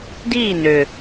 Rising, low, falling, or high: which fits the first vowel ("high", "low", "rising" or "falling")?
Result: falling